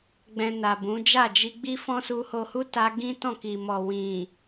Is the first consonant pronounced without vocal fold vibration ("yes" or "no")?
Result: no